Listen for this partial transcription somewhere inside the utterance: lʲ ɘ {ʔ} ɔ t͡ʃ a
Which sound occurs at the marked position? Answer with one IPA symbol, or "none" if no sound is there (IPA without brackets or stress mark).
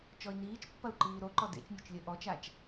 ʔ